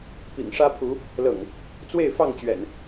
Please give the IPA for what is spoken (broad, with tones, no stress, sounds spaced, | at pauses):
p ḭ˨˩ ŋ ʂ ä˦ pʰ u˨˦ | l ɤ̰˨˩ ŋ | t͡s w e˥˨ ɪ̯ f ɑ˥˨ ŋ t͡ɕ ɥ ɛ̰˨˩ n